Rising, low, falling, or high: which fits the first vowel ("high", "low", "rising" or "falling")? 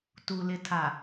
low